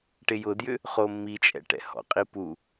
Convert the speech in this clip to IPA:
ʈ ɪ j ʊ d j ʏ | χ o mː i t͡ʃʼ ɛ̰ ʈ ɛ̰ h ɔ̰ qʼ i p u

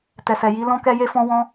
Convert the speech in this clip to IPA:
t ɛ˨ s ɛ˨ j i˨˦ l ɔ̃˦ k ɛ˦ j e˦ f ɔ̃˦ w ɔ̃˦

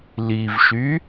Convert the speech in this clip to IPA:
l i v ʃ y

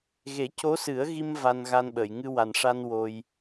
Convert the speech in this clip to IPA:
ɣ e˨˩˦ c o˧˥ s ɨ˨˩˦ ə̯ ɣ i˧ m v a˧ n ɣ a˧ n ɓ əː˨˩˨ j ŋ ɨ˧ w a˨˩ n ʂ a˧ n w o˧ j

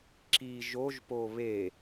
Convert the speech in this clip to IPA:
ǁ i ʒ o ʒ p o β e

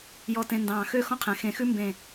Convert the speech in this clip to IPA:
j ɔ˧ t ẽ˧ n d ɑ̃ː˧˩ x ø˥˧ x ɔ̃˥ qʰ ɛ̃˩˧ x ẽ˧˩ x ʉ˥ m b ẽ˧˩

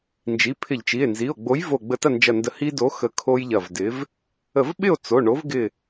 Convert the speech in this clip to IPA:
n d͡ʒ i˩˧˩ pʰ ɪ˧˩˧ ʎ t͡ʃ i˩˧˩ e̯ n z i˩˧˩ o̯ ɡ͡b o˨˥ j v o˧˩ ɡ͡b ə˧˩ t ɐ˥˨ n d͡ʒ ɐ˧˩ n d ə˧˩ h i˦ d o˨˥ x ə˧˩ kʰ o˦ j ʎ ɐ˧˩ v d ɪ˨˥ v | ə˧˩˧ v ɓ ɪ˥˨ o̯ t͡s o˩˧˩ ɳ o˨˥ v ɡ ɪ˧˩

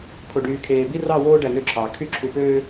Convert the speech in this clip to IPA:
kʰ o˨ ɖ yː˨ kʰ eː˨ b i˦ r ɑ˦˨ w oː˦ ɖ æ˨ n ø˦ ǁʰ ɑ˨ kʰ y˦ ǁʰ u˨ p øː˦

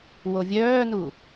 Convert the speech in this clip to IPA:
w o vʲ œː n u

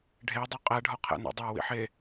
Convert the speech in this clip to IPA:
ɖʱ e dˤ u qʼ æ ɖʱ ɒ qʰ æ̰ n o̰ dˤ æ w ḭ ħ e

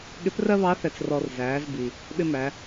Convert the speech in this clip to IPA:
ɠ ɪ˧˥ p r ɜ˥ β ɑ˧˥ θ ɛ˧ t͡s r ɔ˧ r z æː˩˧ z b i˩ | ɓ ɪ˥ m æ˩˧

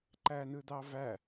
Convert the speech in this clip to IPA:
ǃ æ n ɯ d̪ ɑ v æ

